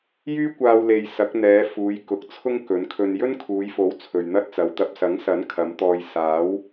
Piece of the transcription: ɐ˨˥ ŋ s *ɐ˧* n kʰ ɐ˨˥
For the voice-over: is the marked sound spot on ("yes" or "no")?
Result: no